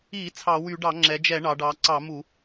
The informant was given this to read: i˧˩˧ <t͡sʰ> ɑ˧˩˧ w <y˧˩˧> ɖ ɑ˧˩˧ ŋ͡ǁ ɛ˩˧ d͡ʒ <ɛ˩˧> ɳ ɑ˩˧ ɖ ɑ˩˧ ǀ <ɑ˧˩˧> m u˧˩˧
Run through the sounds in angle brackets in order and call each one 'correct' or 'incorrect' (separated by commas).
correct, correct, incorrect, correct